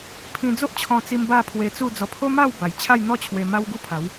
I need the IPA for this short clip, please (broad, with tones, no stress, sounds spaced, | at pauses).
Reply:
pʰ ĩ˧ d͡z o˦ ʔ t͡ɕʰ ɔ̃˧ t͡s i˧ m b a˥˧ pʰ w e˧ t͡s u˥˧ d͡z ɔ˧ pʰ o˦ m a˥˧ w b a˨˩ j t͡ɕʰ a˥˧ j n̪ ɔ˥˧ t͡ɕʰ w e˧ m a˦ w ɡ u˦ pʰ a˨˦ w